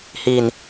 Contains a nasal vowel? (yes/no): no